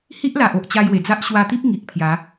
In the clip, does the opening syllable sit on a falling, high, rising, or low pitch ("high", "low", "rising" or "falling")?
high